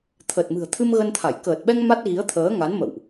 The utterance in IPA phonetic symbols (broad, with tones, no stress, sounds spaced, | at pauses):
t̪ʰ ə˨˩ t̚ m ɨ̤˨˩ ə̯ t̪ʰ ɨ˧ m ɣ ə˧ n t̪ʰ a˧˩ j k əː˨˩ t̚ ɓ ɛ˧ ŋ m a˦˥ t̚ ɣ i˨˦ ə̯ t̪ʰ əː˨˦ ŋ a˨˦ n m ə̰˧˨ w ʔ